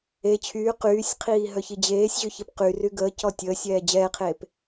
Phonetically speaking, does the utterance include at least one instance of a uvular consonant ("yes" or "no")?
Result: yes